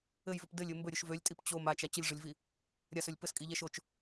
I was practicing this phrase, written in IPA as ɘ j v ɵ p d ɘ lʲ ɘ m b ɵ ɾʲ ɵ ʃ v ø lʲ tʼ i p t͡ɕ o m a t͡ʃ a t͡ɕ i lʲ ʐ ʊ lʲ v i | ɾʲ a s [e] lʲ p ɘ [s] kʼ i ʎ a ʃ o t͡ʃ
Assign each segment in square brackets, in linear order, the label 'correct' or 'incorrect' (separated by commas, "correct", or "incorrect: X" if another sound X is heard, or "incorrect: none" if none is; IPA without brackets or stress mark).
incorrect: ø, correct